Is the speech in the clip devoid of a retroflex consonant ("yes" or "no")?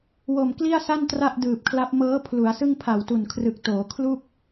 yes